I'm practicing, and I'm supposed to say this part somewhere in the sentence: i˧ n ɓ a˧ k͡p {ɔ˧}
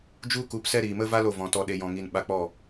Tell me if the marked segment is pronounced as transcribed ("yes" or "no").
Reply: no